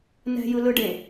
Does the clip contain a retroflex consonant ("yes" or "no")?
yes